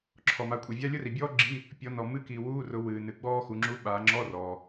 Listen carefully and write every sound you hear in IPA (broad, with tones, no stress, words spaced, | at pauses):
ǁʰɔ˨ma˨˦kʷʼe˨vʲa˥ lʲʊ˥ri˨bʲɔː˥ɡ͡ǁi˧˥˧ | pʲɔ˨˦nɔ˨ mɨ˧˥˧ki˨wuː˧˥˧rʊ˨˦ wɨː˨nɨ˨ ɡ͡bɔː˥xu˨˦ŋ͡ǁu˧˥˧ ɓaː˨˦ŋ͡ǁɔ˧˥˧ rɔː˨